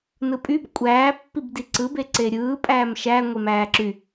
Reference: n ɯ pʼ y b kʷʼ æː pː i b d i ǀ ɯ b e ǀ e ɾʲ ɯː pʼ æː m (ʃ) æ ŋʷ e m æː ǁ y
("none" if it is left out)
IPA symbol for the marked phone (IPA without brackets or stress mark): ʃ